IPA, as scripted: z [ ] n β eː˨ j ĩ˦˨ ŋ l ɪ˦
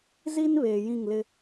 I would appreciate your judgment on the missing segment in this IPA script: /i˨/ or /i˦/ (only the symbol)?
i˦